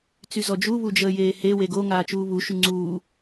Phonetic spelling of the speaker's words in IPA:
t͡s y z ɔ d͡ʒ u β u d͡ʒ əː j eː h e w e ɡ o ŋ aː t͡ʃ uː β u ʃ y ŋ͡ǀ uː

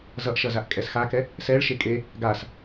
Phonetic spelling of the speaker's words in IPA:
z ʌ ʔ ʃ ʌ z a ʔ kʼ ɛ s x a k ɛ | s ɛ ɭ ʃ e kʼ e | ɡ a s

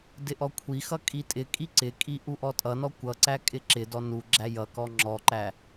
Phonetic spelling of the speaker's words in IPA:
d ɪ ʔ ɔ kʷʰ i x ʌ kʼ i tʼ ɪ kʼ i ǀ ɪ kʼ i ʔ u ʔ ɔ tʼ ʌ n ɔ kʷ ʌ ǀ æ kʼ ɪ ǁ ɪ d ɔ n u ɡ͡ǁ æ j ʌ k ɔ ŋ͡ǁ ɔ ǃ æ

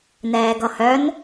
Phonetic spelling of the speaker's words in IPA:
n ɛː ɡ ʌ h œ n

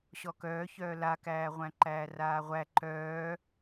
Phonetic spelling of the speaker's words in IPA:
ɕ ɔ k œː ç œː l a k æː ʁʷ æ̃ ǃ æː r aː ʁʷ æ ǃ œː

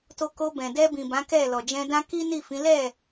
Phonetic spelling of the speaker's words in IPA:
t o˧ k o˧ b ɛ̃˨ d ɛ˧ b ĩ˨ b ã˨˦ k ɛ˦˨ l ɔ˨ d͡ʒ ɛ̃˧ d ã˦ k i˦ n i˦˨ f ĩ˨˦ l ɛ˦˨

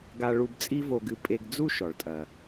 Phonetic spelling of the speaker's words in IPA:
ɡ a˧ ɭ u˧ b t͡sʼ i˥ v o˧ ɡ ɨ˧ pʼ e˧ ɡ d͡z u˥ ʃ ɔ˩ ɭ tʼ ɐ˩

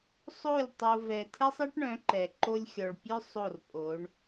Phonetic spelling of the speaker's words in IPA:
sˤ o˦˨ lʲ tˤ o˧ v ɛ˧ tʰ ɛ˦ sˤ ɛ˦ ʈ ɳ œ̃˨˦ ǃ ɛ˨ ǃ o˧ lʲ xʲ ɔ˨ ɭ pʲ œ˦ sˤ o˦˨ r pʼ o˨˦ ɳ

